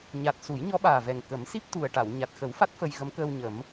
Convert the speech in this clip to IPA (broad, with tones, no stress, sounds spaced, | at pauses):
ɲ a˨˩ t̚ s u˨˩˦ j ɲ ɔ˧˥ ɓ aː˨˩ v ɛ˨˩ ŋ k ə˨˩˦ m s i˦˥ p̚ t̪ u˨˩ ə̯ ʈ a˨˩˨ w ɲ a˨˩ t̚ x ə˨˩˦ w f a˦˥ t̚ f ə˧ j ɣ ə˧˥ m k əː˧ w ɲ ə˨˩˦ m